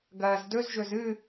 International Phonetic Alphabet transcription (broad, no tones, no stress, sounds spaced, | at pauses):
ɡ ɐː z d ɵ z ʒ ɵ z ɨ